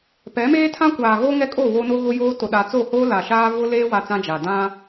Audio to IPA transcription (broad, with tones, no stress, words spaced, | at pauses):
pɛ˨˦meː˦tʰã˦kʷaː˨ ɣo˦ŋɛ˦kʼo˦˨ wo˦no˦ɣʊ˦joː˦ to˨ɗa˨t͡so˦˨hoː˦ la˨ʃaː˦ vʊ˦leː˦ wa˦t͡sã˦d͡ʒa˨ dã˦